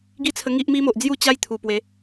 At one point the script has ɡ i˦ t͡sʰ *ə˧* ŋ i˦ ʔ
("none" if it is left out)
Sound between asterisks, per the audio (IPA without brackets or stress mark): ə˧